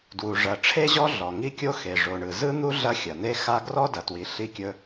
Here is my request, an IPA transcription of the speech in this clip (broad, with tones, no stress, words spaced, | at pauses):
dwu˩ ʐɐ˩ ʈ͡ʂʰe˥ʑɔ˥ ɮɔ˩ ŋi˥kʲo˥ xe˩ʐo˩ɳɯ˩ zɯ˥n̪u˥ ɮɐ˥xʲɐ˩ne˥xa˥ ɡrɔ˥dɐ˩twi˩ ɬi˥kʲɵ˥